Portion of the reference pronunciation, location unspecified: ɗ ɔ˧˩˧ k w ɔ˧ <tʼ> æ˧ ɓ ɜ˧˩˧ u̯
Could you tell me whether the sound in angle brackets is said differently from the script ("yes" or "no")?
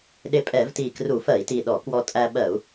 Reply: no